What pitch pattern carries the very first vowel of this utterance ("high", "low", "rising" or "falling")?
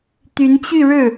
rising